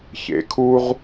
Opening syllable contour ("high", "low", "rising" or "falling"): low